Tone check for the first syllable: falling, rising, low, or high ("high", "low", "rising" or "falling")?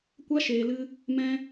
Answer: high